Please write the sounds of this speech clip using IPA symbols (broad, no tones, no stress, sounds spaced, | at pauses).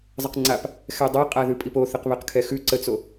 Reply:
zˤ ə q ŋ͡ǀ a p | x ɛ dˤ a qʼ a ð ʉ pʼ i p o θ ə q β ɛ q kʰ ɛ x ʉ ǀ ə t͡s o